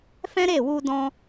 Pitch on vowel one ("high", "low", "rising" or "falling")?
high